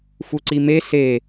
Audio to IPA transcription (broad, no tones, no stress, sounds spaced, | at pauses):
f u ǀ i m e s e